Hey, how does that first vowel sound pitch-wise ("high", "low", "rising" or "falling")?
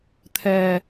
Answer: low